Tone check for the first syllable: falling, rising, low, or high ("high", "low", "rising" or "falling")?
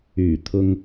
low